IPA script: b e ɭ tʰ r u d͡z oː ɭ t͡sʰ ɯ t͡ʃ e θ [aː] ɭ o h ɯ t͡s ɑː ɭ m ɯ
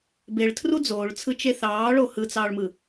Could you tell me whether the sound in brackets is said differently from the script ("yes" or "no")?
yes